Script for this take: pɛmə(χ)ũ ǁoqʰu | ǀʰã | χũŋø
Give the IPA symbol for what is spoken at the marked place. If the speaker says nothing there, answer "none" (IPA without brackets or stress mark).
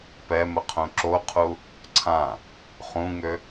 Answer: qʰ